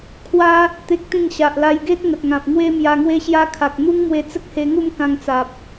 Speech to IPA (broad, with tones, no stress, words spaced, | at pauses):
kʰwa˦ | t̪e˦k̚t̪ĩ˥˧ŋ ɕa˨ʔla˧jɡe˦t̚ ŋə˨t̚ŋã˨p̚ŋwe˦ mja˧ŋwe˦ɕja˦kʰa˨k̚ n̪u˦ŋmwe˧ t͡sə˦k̚he˧ŋu˥˧m kã˧ŋt͡sa˨p̚